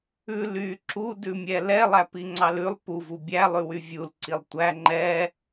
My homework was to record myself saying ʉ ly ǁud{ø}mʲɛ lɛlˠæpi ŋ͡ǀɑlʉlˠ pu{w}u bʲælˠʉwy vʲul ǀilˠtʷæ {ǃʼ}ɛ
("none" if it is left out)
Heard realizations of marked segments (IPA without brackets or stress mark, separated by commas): ʉ, v, ŋ͡ǃ